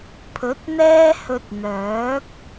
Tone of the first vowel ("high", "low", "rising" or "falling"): rising